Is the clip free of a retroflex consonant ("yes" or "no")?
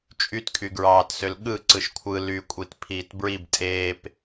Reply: yes